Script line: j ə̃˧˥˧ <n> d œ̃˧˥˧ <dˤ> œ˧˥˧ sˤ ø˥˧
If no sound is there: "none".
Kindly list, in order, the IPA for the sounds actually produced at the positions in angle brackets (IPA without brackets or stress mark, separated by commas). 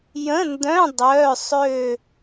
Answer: n, dˤ